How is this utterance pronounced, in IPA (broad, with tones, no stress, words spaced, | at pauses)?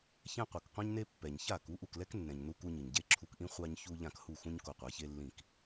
çɛ̃˧ qʷɤ˩kqʷɛ̃˥ɲne˥ pːɛ˩ɲça˥˩ ku˩˥ʔu˩klɛ˥knːɛ̃˩ɲ nu˧ku˧ɲɯ˩ɲɟe˥˩ ǁʰu˧kʔĩ˥ χʷa˧ɲçu˧ ʎã˥˩k hu˥˩xũ˥ɲ ko˧qʷa˩˥çe˥lːĩ˥˩k